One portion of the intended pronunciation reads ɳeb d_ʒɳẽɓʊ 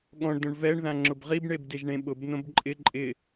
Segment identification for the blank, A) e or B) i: A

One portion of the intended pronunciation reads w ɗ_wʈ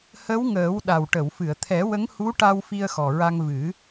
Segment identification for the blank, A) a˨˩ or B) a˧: A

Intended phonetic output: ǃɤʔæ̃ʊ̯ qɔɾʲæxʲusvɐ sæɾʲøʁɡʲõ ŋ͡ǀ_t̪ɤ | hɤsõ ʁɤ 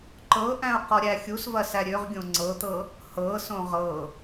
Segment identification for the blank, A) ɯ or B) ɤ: B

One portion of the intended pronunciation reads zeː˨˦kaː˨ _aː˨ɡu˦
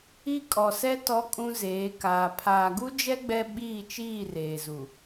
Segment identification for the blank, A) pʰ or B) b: A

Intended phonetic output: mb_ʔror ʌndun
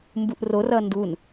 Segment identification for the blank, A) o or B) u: B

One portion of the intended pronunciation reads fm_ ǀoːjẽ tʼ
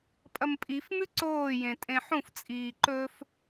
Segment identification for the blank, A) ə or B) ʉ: B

